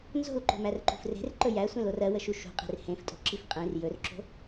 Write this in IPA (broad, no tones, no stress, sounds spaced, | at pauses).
n z o̤ l ǃ o̤ m æ r ǃ ṳ f r e̤ r ǃ ɵ j æ sʷ ẽ l o r ɜ w ə ʃ u ʃ ṳ qʼ e̤ r h ẽ f tʼ o̤ ǁ i f qʼ ẽ r j ɵ r ǁ o̤